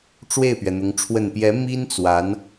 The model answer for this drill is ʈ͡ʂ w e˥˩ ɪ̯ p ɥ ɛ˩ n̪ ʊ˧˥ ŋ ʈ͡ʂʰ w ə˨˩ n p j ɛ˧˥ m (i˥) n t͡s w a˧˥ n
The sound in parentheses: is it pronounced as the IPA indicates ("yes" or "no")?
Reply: yes